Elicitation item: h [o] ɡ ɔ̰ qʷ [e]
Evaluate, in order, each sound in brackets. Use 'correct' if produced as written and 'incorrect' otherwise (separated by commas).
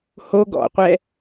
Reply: correct, incorrect